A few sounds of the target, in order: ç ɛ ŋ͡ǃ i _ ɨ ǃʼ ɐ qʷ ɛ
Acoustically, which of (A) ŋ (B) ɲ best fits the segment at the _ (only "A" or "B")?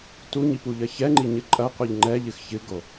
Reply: B